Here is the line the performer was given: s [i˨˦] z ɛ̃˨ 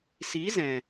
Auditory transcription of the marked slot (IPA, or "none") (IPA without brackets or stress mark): i˨˦